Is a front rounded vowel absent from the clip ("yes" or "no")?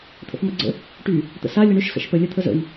no